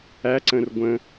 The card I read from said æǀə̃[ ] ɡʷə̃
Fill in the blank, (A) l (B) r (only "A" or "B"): B